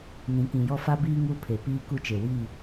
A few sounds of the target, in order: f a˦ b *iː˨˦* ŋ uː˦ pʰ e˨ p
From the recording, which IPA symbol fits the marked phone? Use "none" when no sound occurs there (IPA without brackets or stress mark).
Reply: iː˦